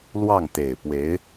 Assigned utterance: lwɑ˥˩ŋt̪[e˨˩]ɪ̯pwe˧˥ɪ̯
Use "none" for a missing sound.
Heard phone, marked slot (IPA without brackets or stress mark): e˨˩